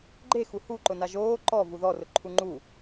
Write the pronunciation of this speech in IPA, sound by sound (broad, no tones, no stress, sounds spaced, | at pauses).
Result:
ɡ͡ǃ e x u h u ǃ ʊ n a ʒ oː ǃ ɔ v u ð ɔ r ʊ ǃʰ u ŋ͡ǃ u